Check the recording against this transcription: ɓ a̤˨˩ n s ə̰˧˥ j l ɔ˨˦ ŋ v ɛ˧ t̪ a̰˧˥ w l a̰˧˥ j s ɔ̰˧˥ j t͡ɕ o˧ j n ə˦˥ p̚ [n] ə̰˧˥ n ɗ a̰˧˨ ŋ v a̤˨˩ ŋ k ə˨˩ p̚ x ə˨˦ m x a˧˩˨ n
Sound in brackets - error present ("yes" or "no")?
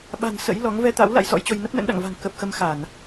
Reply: no